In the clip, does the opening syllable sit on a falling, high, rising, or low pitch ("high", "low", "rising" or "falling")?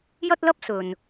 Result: high